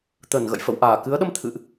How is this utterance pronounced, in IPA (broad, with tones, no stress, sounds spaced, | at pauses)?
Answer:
t̪ ə˧˩ n ɣ ə̰˧˨ j f ə̰˧˨ w ʔ aː˧˩ k ɨ˨˦ ə̯ ɗ ə˧ m t̪ʰ ɨ̰˧˨ ʔ